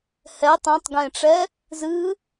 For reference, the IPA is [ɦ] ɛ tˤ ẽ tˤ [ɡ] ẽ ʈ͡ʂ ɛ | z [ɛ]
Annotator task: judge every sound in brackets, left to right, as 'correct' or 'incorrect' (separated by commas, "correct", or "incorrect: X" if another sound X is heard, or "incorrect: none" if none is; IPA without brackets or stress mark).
incorrect: h, correct, incorrect: ɨ